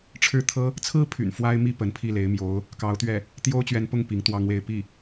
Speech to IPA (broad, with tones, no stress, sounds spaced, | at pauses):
ʈ͡ʂʰ ɻ̩˥˩ t̪ʰ ɤ˥ | t͡sʰ ɹ̩˥ pʰ y̰˨˩ n f w a˥ ɪ̯ m i˥ p ə˧˥ n pʰ i˥˩ l e˧˥ ɪ̯ m j o˧˥ ʊ̯ | k ɑ˧˥ ʊ̯ t̪ ɥ ɛ˥˩ | t̪ j o˥ ʊ̯ t͡ɕ ɥ ɛ˧˥ n p ʊ˥˩ ŋ p i˧˥ ŋ t̪ w ɑ˥ ŋ w e˥˧ ɪ̯ p i˥˩